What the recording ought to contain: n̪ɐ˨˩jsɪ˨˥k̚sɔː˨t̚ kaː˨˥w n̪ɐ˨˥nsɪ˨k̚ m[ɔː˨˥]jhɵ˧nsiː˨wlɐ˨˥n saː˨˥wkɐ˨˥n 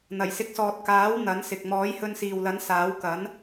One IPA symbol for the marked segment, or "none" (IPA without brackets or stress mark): ɔː˨˥